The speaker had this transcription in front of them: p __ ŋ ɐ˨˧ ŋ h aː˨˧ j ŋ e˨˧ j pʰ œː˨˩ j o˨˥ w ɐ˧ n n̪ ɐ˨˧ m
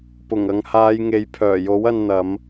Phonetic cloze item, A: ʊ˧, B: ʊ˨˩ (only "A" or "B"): B